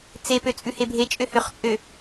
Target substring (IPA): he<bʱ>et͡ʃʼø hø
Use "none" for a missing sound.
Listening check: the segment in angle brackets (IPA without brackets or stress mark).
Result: bʱ